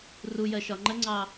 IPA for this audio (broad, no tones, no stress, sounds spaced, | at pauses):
r u j ɜ ʃ ɒ ŋ͡ǃ ə ŋ͡ǀ ɑ